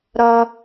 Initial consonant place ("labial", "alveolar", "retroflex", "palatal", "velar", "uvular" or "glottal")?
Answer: alveolar